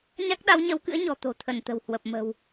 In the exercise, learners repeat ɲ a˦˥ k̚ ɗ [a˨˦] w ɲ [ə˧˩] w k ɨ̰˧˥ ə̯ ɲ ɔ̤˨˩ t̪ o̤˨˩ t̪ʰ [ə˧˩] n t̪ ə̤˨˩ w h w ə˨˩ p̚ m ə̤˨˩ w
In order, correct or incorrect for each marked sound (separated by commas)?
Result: correct, incorrect, correct